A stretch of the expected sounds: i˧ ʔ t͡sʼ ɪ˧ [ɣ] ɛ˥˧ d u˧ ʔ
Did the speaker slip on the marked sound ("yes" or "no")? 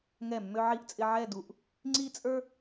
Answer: yes